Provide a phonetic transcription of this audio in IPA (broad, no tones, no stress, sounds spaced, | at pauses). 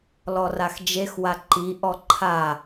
l ɔ r a x d͡ʒ e x w a ǃ i ʔ ɔ ǃʰ a